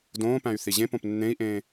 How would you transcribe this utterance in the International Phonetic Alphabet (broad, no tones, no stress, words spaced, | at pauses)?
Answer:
dõːpæ̃y̯ θiʑẽpõp nːẽi̯ʔẽː